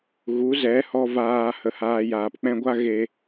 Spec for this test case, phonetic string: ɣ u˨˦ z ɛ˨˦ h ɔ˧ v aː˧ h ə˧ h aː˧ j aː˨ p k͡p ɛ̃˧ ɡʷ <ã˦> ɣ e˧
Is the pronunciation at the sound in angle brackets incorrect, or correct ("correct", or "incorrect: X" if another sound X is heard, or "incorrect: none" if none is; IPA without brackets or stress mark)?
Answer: incorrect: a˦